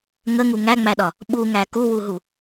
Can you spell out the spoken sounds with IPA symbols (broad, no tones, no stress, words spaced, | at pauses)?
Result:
ŋəŋu ŋæŋ͡mæɗɒ | ɓuŋæ kuwuɦu